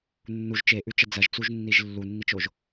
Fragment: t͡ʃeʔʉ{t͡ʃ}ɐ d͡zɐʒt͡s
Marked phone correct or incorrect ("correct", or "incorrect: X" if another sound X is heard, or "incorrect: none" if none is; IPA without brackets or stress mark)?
correct